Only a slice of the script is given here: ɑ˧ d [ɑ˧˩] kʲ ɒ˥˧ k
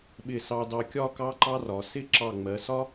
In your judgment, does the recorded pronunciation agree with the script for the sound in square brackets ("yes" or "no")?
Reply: no